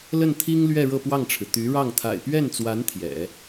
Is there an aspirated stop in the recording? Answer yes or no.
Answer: yes